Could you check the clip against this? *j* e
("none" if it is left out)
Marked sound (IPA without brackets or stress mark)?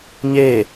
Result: ɲ